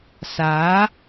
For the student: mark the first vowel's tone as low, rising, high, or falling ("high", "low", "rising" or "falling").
rising